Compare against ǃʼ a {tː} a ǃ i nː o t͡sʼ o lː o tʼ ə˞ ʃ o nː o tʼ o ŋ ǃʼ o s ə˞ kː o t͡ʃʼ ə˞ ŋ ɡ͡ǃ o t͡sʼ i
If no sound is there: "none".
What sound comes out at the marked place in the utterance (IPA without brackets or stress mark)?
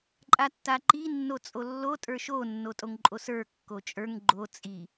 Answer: tː